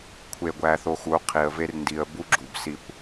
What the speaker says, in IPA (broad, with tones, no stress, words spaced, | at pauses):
kʷʰe˧ɡʷæ˧θo˧xu˨˦ qʰi˨ə̯ ve˧rndi˨ə̯ bu˦ɡ͡ǁu˨bsi˧kʷ